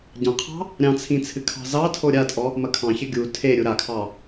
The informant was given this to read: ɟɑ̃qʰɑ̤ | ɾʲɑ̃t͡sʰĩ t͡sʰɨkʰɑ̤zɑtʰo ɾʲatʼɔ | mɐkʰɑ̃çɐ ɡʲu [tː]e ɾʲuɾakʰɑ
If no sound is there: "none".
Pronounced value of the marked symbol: tʰ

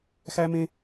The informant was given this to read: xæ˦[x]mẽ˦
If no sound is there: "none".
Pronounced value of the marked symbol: none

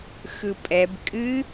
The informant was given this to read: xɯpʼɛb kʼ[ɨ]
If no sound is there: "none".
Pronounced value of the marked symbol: ɨ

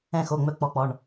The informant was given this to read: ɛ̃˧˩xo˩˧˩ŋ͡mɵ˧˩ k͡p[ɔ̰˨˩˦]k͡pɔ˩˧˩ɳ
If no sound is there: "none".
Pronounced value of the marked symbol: ɔ˨˩˦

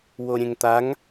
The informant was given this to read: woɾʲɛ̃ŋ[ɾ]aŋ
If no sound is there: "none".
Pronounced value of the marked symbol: t̪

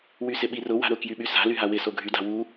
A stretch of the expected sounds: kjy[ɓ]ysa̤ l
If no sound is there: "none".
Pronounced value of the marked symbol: ɓ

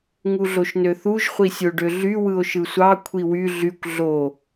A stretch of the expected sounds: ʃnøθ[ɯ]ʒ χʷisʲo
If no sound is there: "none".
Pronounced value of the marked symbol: u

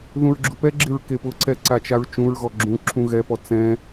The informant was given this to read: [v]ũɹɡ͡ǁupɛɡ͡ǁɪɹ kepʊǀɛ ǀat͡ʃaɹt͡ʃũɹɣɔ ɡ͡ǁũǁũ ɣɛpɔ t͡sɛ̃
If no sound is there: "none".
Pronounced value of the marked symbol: ð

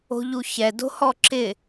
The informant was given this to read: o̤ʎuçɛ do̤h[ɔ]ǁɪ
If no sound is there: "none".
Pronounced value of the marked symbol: ɔ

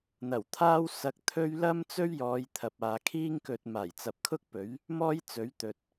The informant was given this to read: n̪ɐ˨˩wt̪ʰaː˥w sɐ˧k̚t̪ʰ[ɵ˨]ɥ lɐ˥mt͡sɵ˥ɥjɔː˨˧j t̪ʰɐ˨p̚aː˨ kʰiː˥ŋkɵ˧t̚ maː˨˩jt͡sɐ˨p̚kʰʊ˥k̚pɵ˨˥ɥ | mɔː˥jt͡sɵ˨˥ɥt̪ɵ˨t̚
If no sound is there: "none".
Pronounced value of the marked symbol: ɵ˥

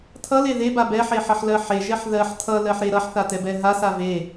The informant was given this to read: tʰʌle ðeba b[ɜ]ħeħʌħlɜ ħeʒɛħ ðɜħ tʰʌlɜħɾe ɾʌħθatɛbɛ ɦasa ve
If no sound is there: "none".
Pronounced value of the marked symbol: ɛ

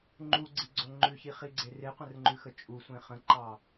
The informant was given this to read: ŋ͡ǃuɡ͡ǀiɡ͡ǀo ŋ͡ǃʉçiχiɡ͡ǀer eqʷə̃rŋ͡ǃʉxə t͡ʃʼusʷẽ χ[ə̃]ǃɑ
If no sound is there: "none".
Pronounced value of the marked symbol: ə̃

